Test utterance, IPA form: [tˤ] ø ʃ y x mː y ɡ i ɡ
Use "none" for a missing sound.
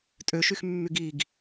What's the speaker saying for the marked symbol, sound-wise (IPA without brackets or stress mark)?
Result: tʼ